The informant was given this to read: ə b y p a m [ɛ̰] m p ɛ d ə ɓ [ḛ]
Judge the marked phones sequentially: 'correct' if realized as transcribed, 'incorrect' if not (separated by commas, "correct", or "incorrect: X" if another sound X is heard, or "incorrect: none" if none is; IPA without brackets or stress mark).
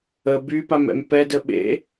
correct, correct